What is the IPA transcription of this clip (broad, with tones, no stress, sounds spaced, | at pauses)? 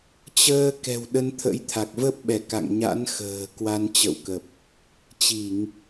t͡ɕ əː˧ k ɛ̤˨˩ w ɗ ə˧ n t̪ʰ ə̰˧˥ j t̪ʰ a˨˩ k̚ v ə˦˥ p̚ ɓ ɛ˧˩ k a̰˧˨ ŋ ɲ a̰˧˥ n x ə̤ː˨˩ k w a˧ n t͡ɕ ə̰˧˨ w k ə˨˩ p̚ | t͡ɕ i˧˩˨ ŋ